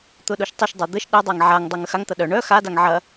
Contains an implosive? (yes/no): yes